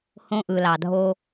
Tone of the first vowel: high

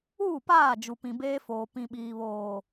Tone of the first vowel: falling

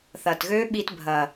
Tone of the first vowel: low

